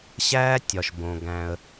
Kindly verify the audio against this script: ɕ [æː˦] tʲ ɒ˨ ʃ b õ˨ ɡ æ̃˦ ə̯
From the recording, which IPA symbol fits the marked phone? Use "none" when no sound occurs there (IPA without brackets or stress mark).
æː˦